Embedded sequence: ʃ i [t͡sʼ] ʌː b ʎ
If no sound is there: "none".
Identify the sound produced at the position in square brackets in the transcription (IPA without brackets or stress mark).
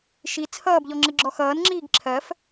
t͡sʰ